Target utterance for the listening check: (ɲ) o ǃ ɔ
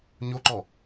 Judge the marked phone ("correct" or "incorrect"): correct